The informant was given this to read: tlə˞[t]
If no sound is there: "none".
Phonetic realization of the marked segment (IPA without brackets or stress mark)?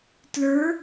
none